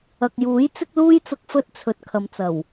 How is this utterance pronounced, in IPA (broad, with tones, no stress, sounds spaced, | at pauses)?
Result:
ɐ˨ k̚ j uː˨˥ j t͡s ɪ˧ k̚ l uː˧ j t͡s ʊ˨ k̚ f ɵ˧ t̚ t͡sʰ ɵ˨ t̚ kʰ ɐ˨ m t͡s ɐ˨˩ w